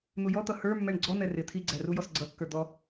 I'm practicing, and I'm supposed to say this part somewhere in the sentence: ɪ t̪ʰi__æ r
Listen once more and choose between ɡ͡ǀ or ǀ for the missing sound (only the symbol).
ɡ͡ǀ